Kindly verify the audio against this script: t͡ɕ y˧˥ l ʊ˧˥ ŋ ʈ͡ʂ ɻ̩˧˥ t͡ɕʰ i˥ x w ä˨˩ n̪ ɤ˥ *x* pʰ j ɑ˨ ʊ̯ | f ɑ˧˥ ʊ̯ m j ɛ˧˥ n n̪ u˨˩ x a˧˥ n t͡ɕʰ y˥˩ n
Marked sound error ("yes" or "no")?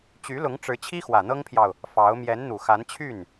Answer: yes